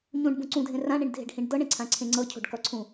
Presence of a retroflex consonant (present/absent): present